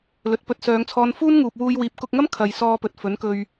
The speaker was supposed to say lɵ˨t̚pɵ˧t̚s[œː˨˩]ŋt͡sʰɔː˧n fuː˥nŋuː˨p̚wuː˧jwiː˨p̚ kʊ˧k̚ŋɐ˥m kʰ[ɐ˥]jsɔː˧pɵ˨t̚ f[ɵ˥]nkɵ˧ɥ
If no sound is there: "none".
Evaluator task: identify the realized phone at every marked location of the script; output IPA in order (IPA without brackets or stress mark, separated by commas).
œː˨˧, ɐ˨, ɵ˨˥